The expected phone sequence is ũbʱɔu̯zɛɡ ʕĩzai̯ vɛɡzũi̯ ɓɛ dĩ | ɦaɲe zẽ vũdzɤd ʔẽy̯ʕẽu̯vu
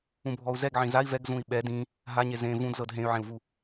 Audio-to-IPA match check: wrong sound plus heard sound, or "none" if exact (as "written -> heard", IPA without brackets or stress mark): ʔ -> ɦ